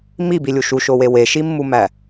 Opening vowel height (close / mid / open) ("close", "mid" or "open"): close